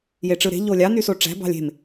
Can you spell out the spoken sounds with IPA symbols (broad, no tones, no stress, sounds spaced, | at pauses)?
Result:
j e ʈ͡ʂ ɯ ɾ e̤ ʎ o lʲ ɑ n y s o ʈ͡ʂ æ̤ b ɑ̤ lʲ e̤ m